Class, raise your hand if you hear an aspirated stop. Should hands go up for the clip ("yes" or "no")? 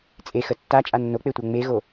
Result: no